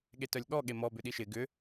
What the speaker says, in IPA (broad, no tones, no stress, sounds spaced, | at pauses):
ɠ e t œ lʲ ɠ ɔ ɠ e m ɔ b ʏ ɗ i ʃ ɪ ɡ ʏ